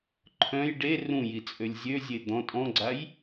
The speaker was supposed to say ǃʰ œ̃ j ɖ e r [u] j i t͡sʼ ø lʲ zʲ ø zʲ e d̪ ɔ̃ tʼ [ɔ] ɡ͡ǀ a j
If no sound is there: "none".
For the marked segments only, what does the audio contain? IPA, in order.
ũ, ɔ̃

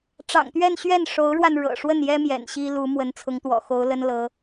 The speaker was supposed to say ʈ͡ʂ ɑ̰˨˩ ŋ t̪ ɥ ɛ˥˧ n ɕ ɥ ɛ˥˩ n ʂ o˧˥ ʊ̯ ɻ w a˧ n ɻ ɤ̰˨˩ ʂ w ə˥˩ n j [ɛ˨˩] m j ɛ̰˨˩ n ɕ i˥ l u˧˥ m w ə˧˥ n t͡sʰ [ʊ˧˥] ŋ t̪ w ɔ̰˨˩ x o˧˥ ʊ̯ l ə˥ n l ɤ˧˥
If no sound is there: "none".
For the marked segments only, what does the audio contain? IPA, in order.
ɛ˥, ʊ˧˥

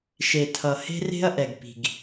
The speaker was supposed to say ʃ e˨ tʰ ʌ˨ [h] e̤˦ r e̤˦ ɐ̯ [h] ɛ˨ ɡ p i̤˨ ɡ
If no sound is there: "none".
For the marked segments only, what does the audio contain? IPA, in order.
h, ʔ

